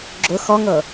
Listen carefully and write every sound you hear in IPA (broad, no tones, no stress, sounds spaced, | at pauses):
ɡ͡ǁ ʊ x ɔ ŋ ɤ